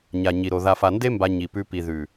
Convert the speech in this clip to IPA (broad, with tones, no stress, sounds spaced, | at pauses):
ɲ a˨ ɲ i˨ ɾ o˨ ð a˨ f a˨ n d e˦ m b a˧ ɲ i˨ p ʉ˧ p i˨ ð ʉ˨